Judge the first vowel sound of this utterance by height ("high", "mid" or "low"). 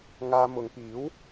low